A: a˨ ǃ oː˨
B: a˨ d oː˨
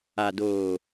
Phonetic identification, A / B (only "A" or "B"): B